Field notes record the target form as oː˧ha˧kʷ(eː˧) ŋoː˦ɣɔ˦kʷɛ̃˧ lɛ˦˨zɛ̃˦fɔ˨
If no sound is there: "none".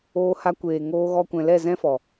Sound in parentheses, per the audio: eː˨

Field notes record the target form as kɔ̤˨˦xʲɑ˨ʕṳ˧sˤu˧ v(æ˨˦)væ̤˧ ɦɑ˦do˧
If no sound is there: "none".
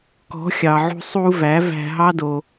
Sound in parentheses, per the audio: æ˨˦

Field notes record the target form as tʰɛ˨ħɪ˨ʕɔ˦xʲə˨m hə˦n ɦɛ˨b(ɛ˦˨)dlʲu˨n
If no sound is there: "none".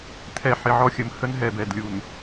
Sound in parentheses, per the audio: ɛ˨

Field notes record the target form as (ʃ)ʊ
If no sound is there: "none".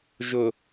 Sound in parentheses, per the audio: ʒ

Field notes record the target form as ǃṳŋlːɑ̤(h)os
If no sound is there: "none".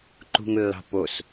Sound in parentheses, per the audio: p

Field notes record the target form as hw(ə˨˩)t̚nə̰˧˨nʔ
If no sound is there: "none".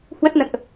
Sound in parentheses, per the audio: ə˦˥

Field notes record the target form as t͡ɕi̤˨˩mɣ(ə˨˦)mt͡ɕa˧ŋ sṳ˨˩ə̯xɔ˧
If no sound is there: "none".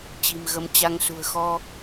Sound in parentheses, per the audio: ə˨˦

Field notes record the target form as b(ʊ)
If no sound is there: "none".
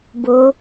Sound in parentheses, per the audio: ʊ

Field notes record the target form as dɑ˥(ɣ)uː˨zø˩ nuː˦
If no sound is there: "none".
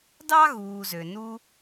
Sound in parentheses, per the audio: ɣ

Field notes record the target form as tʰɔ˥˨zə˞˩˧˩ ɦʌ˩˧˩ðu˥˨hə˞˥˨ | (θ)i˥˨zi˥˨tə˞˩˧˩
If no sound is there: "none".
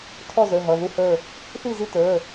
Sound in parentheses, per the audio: θ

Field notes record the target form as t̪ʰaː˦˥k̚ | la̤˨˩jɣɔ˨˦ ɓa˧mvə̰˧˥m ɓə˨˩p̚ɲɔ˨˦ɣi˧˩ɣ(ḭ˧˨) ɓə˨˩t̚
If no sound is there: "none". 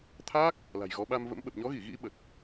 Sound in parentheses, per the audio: ḭ˧˥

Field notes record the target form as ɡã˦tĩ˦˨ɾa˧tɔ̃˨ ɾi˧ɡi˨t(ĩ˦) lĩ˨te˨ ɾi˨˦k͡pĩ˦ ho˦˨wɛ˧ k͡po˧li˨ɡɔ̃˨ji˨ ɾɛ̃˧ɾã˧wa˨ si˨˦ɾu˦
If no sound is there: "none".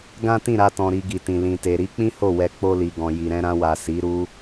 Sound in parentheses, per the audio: ĩ˨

